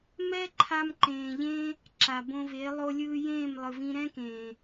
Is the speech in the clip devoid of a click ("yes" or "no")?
no